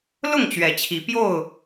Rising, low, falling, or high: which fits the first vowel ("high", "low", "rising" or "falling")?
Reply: falling